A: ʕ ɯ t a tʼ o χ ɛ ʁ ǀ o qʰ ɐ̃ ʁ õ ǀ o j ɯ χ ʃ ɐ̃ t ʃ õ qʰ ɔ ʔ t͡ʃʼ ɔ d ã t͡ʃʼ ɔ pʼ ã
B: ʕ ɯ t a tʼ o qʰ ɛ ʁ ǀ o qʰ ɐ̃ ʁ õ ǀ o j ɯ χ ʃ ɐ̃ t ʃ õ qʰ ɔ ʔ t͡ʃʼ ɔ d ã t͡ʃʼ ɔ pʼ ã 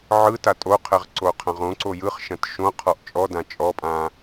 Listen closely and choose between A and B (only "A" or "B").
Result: B